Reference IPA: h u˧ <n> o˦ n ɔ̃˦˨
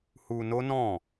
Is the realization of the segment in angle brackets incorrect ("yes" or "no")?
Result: no